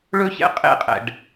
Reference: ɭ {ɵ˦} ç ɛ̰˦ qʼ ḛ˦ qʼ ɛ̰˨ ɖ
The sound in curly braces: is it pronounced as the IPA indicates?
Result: yes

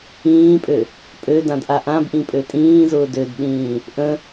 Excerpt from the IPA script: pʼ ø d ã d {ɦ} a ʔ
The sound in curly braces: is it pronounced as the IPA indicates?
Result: no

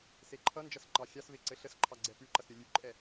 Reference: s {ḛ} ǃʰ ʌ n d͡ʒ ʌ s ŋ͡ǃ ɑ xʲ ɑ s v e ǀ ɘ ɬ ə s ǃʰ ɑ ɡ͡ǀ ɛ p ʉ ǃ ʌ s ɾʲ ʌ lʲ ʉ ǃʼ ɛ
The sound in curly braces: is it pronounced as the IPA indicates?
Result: no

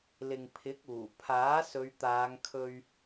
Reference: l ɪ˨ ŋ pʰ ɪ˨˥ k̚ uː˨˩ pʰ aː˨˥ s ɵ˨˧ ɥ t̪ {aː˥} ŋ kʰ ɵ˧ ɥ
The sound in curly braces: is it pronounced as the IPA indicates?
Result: no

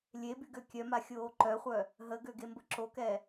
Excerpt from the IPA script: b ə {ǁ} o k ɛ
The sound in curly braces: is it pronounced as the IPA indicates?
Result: yes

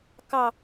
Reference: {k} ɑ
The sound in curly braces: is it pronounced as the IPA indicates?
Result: yes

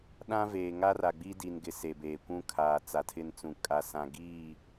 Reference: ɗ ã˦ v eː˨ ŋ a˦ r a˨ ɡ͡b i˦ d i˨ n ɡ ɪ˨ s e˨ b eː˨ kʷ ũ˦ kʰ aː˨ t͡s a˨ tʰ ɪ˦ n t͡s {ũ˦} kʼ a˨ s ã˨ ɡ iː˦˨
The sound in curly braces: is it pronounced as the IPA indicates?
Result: no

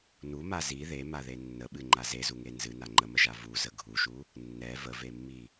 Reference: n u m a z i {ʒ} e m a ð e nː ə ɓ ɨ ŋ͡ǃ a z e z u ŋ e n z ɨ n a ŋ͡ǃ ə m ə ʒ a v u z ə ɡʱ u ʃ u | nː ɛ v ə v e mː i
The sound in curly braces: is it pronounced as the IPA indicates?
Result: no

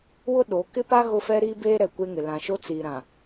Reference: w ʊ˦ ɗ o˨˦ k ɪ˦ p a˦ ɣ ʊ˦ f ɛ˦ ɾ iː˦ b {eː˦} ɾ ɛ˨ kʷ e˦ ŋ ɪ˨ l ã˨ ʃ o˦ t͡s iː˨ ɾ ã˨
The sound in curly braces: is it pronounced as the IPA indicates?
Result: yes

